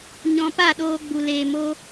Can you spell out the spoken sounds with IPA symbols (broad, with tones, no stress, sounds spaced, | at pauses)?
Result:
ɲ ɔ̃˧ p a˦˨ ɗ oː˧ ɡ͡b u˨ l eː˨ m o˦